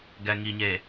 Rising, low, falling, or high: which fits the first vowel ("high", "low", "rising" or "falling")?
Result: low